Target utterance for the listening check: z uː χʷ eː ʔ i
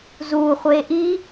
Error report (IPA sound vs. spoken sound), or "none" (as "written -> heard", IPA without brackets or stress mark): none